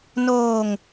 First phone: n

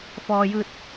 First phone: f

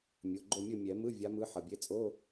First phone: mʲ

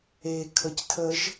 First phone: e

